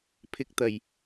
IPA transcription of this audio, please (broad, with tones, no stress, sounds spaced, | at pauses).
pʰ ɪ˨˥ k̚ t̪ ɐ˨˩ j